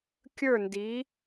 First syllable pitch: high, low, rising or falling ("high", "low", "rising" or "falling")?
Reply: falling